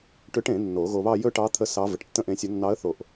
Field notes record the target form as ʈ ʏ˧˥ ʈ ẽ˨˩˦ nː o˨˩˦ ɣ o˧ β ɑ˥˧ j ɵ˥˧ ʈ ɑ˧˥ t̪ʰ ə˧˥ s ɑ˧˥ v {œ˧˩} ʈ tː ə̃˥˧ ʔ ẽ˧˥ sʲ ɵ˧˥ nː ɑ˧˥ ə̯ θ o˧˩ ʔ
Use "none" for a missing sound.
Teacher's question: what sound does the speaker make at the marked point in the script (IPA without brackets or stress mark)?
ə˧˩